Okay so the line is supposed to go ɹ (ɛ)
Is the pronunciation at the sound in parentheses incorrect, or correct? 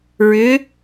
incorrect